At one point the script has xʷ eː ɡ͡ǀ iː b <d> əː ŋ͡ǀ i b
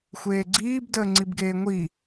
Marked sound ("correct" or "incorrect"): correct